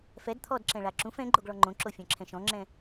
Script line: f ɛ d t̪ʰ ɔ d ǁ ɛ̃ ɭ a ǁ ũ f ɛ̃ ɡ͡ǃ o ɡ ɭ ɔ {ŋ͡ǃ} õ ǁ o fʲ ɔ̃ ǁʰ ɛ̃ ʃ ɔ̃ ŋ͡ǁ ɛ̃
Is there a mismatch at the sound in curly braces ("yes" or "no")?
no